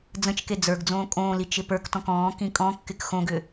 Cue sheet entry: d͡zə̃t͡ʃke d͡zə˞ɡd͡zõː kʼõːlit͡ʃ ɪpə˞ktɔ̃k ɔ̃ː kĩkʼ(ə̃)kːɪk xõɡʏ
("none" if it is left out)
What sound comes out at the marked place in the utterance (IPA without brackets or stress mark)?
ɔ̃